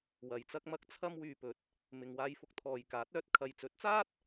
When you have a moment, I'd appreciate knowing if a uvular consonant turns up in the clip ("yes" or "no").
no